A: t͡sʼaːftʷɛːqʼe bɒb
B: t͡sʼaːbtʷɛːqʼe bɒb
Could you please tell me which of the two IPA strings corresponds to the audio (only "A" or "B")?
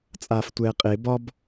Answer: A